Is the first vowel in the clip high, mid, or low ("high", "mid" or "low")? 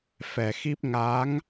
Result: mid